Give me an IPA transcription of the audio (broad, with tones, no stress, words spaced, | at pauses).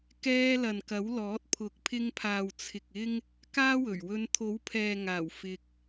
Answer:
kɛː˧lɐ˨nkɐ˨˥wlɔː˨˥t̚ pʰʊ˨k̚pʰɪ˧ŋpʰaː˨wt͡sʰɪ˨k̚ ɪ˧ŋ | kaː˥wɵ˨˩ɥwɵ˧n t̪ʰo˨˥wpʰɛː˨ŋaː˨˩w fɪ˧k̚